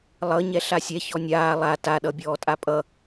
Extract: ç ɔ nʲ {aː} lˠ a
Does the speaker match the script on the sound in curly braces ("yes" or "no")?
yes